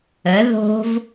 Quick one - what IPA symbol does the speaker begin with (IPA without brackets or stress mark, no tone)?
ə